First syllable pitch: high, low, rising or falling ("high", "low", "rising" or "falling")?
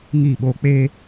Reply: falling